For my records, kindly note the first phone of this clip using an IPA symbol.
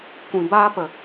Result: kʷ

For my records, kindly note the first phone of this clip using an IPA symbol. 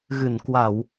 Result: ɣ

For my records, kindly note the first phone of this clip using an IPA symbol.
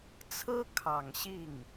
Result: t͡sʰ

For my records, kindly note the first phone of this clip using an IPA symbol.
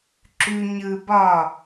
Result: ǁ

